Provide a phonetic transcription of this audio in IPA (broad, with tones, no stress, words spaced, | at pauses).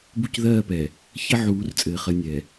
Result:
bu˦cðɜː˦˨pɛ˨ | çə˦ʕuː˨˦rt͡sʼɘː˨χə˨ nʲɛ˨